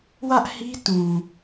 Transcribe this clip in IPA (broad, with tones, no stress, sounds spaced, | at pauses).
w ä˦ ʔ h i˦ t ũ˨